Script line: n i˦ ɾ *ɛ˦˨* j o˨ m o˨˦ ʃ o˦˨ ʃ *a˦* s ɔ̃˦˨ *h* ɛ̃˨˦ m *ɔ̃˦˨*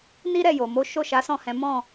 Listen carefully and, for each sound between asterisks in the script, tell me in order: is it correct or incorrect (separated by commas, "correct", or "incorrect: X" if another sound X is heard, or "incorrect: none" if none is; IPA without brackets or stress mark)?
correct, incorrect: a˨˦, correct, correct